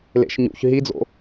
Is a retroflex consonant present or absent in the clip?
absent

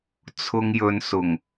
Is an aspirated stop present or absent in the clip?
present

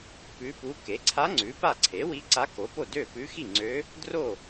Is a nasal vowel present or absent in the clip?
absent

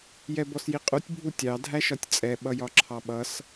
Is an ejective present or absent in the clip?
present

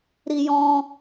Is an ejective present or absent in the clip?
absent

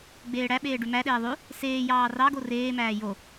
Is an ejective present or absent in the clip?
absent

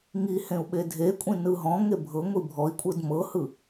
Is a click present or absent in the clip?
absent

